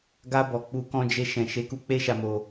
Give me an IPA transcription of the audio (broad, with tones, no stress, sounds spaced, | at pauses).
ɡ a˧ b ɔ˨ k͡p u˧ k ɔ̃˧ d͡ʒ e˧ ʃ ɛ̃˨ ʃ e˨˦ k u˧ k͡p e˦ ʃ a˧ m o˧